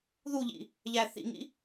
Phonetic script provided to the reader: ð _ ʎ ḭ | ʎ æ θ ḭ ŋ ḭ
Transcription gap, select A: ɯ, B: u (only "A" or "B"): B